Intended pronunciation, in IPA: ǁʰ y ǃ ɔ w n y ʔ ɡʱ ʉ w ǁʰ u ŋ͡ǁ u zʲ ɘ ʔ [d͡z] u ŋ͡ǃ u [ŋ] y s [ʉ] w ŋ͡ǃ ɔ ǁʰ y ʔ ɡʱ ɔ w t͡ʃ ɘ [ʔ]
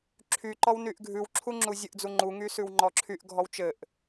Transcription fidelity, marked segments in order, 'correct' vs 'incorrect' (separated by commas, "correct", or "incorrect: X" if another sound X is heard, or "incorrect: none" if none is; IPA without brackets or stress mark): correct, correct, correct, correct